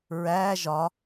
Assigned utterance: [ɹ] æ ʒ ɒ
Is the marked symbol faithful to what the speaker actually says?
yes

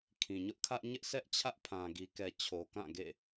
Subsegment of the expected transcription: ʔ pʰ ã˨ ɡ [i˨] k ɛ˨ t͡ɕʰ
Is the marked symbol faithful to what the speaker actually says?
yes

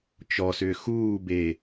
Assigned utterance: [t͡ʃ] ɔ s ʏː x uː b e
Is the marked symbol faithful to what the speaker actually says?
yes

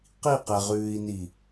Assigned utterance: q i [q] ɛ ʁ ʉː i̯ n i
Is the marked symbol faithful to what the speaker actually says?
yes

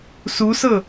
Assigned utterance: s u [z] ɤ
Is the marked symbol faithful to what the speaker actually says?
no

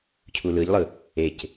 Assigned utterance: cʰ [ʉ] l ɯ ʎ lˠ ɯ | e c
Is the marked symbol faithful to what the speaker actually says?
no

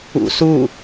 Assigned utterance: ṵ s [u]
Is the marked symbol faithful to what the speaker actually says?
yes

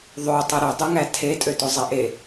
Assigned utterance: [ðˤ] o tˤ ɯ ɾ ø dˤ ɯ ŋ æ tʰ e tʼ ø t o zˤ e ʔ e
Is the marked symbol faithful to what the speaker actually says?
yes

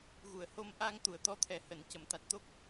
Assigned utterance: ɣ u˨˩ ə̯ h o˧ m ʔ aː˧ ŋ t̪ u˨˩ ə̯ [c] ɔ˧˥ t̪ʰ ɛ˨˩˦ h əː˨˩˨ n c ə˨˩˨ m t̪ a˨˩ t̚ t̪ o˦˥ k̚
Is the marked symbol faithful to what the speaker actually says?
no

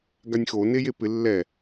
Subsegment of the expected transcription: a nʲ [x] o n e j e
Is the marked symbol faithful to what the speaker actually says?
yes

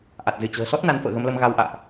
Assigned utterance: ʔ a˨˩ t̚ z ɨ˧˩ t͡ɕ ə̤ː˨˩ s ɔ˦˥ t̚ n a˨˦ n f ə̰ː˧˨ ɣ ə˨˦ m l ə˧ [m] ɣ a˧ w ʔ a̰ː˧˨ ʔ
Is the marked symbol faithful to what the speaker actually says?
yes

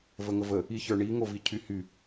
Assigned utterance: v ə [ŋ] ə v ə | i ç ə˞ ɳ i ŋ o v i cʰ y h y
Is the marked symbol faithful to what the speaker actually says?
yes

